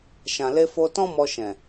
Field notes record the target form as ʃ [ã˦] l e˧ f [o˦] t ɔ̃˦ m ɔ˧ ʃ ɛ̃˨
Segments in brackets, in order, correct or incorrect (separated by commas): incorrect, incorrect